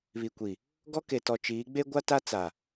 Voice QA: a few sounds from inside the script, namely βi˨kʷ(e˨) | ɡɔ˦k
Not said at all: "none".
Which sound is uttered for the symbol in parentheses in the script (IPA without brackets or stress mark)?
i˨